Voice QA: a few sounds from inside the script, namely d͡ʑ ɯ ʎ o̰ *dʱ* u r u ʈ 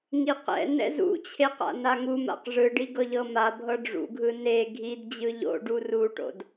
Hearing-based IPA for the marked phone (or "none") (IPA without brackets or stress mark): ɖ